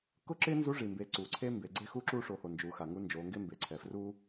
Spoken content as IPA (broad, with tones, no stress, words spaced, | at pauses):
kʊ˥ǁɪː˥nzu˧˥ ʐi˩mbe˩˧ ǀuː˩ǀʰe˥ mbe˩ɡ͡ǀe˥ xu˥ǁuː˥ʂo˩˧ho˩ nd͡ʒuː˩˧xa˩ ŋu˧˥nd͡ʒoː˩˧ŋɡɪː˥ mbe˩ǀʰɛ˩ fru˥